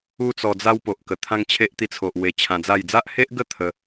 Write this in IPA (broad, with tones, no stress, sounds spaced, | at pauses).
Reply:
u˦ t͡s ɔ˧ d͡z a˦ w p o˨ ʔ k ə˨˩ t̪ʰ ã˦ ŋ t͡ɕʰ e˦ ʔ t̪ i˧ t͡sʰ o˨ ʔ w e˧ t͡ɕʰ ã˧ d͡z a˥˧ j d͡z a˦ ʔ h e˦ ʔ ɡ ə˥˧ t̪ʰ ə˧